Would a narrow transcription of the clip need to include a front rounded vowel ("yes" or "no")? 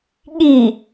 no